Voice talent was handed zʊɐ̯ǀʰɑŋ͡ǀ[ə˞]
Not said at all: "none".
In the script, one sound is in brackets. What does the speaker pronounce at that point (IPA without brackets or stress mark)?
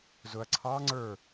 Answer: ə˞